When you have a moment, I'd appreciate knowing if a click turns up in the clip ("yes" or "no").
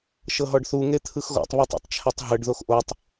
no